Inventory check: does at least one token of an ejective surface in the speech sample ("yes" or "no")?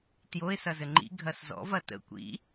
no